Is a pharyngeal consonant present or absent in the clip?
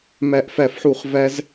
present